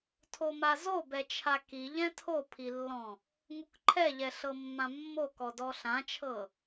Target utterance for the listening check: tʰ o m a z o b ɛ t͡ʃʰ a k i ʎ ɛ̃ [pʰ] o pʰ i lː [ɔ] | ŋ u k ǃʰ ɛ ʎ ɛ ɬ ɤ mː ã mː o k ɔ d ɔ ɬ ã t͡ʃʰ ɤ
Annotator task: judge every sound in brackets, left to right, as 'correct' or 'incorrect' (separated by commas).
incorrect, incorrect